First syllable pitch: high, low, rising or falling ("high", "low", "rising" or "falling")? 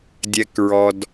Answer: low